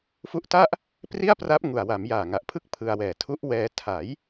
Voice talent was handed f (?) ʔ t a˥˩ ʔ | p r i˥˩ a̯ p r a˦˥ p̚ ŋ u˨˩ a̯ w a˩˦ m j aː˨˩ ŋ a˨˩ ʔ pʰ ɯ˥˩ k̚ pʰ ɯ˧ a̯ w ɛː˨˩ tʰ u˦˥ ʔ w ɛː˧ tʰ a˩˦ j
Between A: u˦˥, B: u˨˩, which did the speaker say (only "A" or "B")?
A